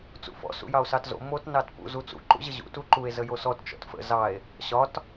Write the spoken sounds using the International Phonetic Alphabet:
t͡sṵfɔ̰ sṵjɑo̯sɑtzo̰ mot nɑtpṵz ut͡sṵ ǃṵʑəʑṵ tuǃue̯ zəjosɔt t͡ʃɔ̰tfə̰ zɑe̯ | ɕɒt

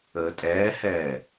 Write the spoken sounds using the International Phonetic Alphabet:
əːtʼɛːhɛː

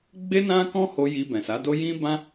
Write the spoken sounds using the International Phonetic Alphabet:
ɡ͡be˦nã˦kɔ̃˦ho˧ ji˧bɛ̃˨sa˨˦do˦ jĩ˦bã˦

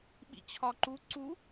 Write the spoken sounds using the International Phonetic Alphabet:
ɓḭt͡ɕʰɒǃu ǀu

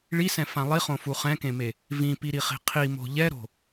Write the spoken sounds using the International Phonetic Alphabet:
ɭisɛ̃fã lˠiχõfu χɛ̃kẽme | vĩpiɾiχi̤ qʰimo̤ ʎɛɾo̤

